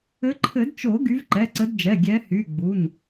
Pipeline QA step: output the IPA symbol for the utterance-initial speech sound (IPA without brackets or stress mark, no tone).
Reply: ɘ